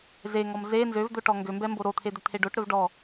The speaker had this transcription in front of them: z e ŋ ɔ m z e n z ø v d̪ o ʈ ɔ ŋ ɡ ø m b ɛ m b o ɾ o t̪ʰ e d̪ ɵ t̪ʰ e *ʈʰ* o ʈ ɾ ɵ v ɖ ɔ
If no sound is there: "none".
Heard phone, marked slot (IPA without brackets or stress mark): ɖ